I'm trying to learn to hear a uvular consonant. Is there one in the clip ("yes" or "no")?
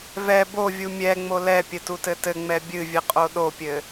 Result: yes